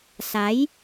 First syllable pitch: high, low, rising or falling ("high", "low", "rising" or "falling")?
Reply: rising